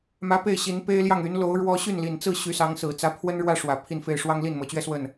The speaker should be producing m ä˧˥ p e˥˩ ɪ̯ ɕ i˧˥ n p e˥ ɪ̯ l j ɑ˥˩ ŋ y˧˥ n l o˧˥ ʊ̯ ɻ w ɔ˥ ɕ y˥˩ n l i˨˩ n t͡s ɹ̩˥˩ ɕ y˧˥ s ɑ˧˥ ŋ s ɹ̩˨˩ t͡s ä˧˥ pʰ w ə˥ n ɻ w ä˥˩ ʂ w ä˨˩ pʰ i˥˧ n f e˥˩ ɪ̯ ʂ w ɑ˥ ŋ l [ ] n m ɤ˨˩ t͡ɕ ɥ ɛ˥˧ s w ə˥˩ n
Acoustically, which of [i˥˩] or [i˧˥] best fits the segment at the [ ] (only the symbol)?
i˥˩